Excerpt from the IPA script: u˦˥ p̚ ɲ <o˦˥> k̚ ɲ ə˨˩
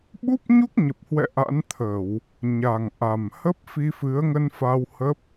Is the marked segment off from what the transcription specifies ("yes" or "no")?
yes